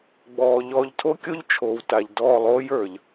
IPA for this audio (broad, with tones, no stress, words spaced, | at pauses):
ɡ͡bɔː˨ ʎɔː˨ʎtʰo˦kʲo˦ʎ t͡ʃʰoː˨wta˨ʎdɔː˦˨ lˠoː˦jə˞˨ʎ